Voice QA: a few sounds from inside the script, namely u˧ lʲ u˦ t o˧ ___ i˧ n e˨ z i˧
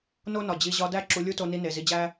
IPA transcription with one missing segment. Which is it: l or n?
n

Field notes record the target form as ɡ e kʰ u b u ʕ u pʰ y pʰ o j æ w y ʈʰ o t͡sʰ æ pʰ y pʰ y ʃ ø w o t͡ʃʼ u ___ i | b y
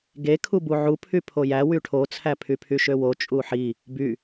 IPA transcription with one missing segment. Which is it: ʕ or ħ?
ħ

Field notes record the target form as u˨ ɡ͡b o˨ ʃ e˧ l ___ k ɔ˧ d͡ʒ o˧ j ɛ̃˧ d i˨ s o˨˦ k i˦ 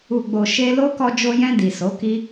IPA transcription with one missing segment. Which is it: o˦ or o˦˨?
o˦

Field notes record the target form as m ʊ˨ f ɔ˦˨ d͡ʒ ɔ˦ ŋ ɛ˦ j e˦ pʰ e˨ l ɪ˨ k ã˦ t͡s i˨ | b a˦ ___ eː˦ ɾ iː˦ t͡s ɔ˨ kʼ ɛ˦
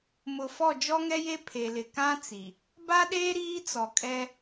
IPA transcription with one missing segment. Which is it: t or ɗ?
ɗ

